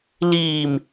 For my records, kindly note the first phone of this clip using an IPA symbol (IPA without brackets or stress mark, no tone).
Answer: l